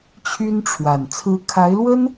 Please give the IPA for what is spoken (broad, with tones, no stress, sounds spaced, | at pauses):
t͡ɕʰ y˥ n ʈ͡ʂʰ w a˨˩ n t͡sʰ ɹ̩˧˥ kʰ a˧˥ ɪ̯ l w ə˥ n